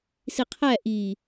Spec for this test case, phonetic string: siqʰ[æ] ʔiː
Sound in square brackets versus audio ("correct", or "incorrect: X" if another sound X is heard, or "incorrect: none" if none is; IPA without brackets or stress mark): correct